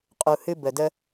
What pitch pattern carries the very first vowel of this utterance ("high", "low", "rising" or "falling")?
low